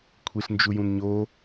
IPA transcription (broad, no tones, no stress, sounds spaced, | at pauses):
kʷʰ i ɬ n d͡ʒ u j ũ n ɲ o